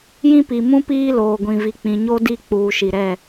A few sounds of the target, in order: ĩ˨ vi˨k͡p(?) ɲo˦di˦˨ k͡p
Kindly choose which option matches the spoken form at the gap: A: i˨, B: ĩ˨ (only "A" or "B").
B